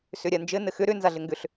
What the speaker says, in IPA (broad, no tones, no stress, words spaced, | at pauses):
sʏɾʲand͡ʒɘ nɘxʏ ɾʏ nzaɮɘŋɡʏɬ